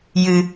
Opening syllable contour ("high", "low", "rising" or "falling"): low